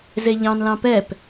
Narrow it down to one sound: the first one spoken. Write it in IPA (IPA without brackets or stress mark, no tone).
z